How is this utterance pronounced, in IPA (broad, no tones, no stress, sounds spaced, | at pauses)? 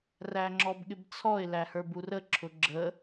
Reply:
r æ ŋ͡ǁ ɔ b ɠ ɪ b t͡sʰ ɔ ɪ̯ l æ h ə˞ b u r ə ǁʰ ʊ ɡ͡ǁ ə